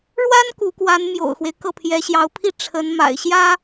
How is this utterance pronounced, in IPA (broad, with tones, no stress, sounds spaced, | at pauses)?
ɻ w a˥ n k u˧˥ k w a˧˥ n m j o̰˨˩ ʊ̯ x w e˦ ɪ̯ k ɤ˥˩ pʰ j ɛ˧˥ ɕ j ɑ˧˥ ʊ̯ pʰ i˥˩ ʈ͡ʂʰ ə˧˥ n m a̰˨˩ ɪ̯ ɕ j ä˥